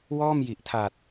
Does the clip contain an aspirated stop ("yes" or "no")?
yes